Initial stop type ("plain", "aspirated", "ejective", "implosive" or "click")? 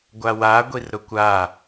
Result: plain